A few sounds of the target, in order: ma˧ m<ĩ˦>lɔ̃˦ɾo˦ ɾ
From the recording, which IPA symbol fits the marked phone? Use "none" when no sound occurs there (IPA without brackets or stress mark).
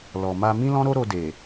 ĩ˦